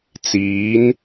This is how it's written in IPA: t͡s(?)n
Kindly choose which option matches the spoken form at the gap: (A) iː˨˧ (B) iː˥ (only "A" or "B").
A